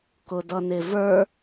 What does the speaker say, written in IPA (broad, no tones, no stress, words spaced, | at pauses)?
kʊdʌnɪvə˞